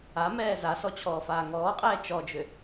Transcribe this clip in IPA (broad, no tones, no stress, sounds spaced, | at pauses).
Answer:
a m ɛː z a s ɔ t͡ɕʰ ɔː f aː ŋ ɔː qʼ ɛː t͡ʃ ɔ d͡ʒ ʏ